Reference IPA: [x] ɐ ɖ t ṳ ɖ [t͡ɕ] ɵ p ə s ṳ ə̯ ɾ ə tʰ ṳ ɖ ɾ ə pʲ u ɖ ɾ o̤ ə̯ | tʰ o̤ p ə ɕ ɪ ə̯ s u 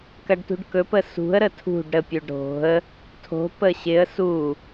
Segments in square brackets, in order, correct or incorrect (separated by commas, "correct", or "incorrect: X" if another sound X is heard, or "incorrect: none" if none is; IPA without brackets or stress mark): incorrect: k, incorrect: k